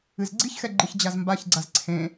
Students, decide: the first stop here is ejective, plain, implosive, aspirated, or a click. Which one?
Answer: click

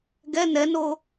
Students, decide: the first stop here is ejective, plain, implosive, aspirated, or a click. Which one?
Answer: plain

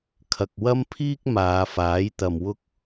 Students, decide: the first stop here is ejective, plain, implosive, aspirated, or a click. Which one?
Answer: aspirated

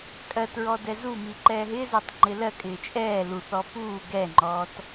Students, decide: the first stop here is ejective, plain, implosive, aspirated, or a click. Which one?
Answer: ejective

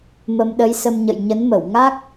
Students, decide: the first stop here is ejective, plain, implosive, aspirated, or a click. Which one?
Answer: implosive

